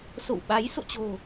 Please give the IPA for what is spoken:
s o̰˧˨ w ɓ a˨˦ j s o̰˧˨ t͡ɕ o̤˨˩

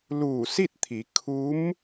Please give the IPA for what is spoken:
l uː˧˩ s i˥˨ t̚ t̪ʰ i˩˧ kʰ u˧˥ m

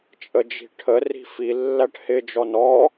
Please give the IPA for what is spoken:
t͡ʃʼ ə d͡ʒ i̤ ʈʰ ə r i̤ f i lː æ ʈ h ɪ d͡ʒ ɔ n ɔ

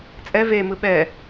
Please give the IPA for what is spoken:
t͡sʼ ɛ v e m ɯ ɓ ɛ

